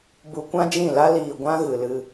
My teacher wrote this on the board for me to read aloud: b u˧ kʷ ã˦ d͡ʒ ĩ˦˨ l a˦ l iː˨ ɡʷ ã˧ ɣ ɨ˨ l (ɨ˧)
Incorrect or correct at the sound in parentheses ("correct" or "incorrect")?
correct